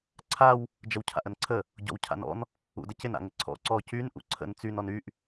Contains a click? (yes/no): yes